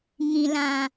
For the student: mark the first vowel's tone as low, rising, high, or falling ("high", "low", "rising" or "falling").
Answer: low